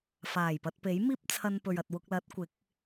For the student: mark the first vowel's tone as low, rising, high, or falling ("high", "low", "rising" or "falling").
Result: low